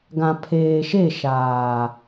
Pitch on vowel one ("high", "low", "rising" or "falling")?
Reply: low